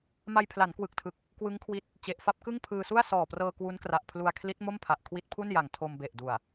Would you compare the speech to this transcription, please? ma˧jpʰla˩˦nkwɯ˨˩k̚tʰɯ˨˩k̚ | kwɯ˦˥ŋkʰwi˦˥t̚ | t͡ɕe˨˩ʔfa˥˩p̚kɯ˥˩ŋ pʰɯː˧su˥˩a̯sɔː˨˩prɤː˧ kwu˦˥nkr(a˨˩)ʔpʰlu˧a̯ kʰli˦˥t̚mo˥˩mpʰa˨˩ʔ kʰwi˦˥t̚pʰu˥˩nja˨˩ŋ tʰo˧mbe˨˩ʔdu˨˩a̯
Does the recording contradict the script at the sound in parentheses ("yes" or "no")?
no